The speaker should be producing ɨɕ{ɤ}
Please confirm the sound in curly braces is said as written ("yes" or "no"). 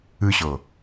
yes